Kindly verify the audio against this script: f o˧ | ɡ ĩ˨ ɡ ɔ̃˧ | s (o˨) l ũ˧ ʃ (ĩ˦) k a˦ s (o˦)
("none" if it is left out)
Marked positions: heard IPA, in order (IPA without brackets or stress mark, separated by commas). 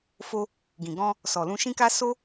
ɔ˨, ĩ˦, o˦